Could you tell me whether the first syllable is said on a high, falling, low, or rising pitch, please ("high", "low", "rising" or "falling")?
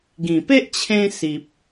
low